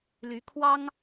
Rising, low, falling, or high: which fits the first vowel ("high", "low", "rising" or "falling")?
rising